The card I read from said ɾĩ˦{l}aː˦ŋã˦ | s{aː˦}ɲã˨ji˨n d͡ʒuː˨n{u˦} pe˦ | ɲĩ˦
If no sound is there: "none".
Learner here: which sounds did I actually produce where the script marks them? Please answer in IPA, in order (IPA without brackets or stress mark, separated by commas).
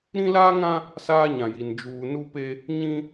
l, aː˦, u˦